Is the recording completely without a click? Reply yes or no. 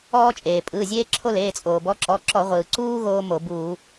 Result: no